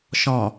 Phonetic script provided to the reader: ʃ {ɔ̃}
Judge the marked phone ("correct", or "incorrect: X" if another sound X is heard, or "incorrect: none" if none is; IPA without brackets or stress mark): correct